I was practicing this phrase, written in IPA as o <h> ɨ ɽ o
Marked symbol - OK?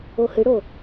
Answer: yes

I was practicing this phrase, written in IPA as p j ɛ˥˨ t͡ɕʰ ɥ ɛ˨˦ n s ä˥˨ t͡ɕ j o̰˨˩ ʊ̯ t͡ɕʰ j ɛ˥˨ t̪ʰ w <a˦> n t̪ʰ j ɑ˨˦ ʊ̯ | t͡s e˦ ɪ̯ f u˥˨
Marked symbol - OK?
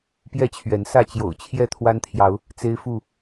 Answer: yes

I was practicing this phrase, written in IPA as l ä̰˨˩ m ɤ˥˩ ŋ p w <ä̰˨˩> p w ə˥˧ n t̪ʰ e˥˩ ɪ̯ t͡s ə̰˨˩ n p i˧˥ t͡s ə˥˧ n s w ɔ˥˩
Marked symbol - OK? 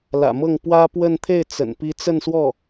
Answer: no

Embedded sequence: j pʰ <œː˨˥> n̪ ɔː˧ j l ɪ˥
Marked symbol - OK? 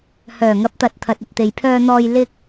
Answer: no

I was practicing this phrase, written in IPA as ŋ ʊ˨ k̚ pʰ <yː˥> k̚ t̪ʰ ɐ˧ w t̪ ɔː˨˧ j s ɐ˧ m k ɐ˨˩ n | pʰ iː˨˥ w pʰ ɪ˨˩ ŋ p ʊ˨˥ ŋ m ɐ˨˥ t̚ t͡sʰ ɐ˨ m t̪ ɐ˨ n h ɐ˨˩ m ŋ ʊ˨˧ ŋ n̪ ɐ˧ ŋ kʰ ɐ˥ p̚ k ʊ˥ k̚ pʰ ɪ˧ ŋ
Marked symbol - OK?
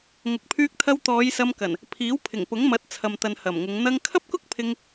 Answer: no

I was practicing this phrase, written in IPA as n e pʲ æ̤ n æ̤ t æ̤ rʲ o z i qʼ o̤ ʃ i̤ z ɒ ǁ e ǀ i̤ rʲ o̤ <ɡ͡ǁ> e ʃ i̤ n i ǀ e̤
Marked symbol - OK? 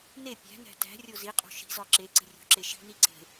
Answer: no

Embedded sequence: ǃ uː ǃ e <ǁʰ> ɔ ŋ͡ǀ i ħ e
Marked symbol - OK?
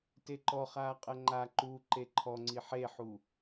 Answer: no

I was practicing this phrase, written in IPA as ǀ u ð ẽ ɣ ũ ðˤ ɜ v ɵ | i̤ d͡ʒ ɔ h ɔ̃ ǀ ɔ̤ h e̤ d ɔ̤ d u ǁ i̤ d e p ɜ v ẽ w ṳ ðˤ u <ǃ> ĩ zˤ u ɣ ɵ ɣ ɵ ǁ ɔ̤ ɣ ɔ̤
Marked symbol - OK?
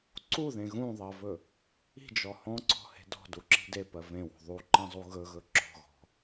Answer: yes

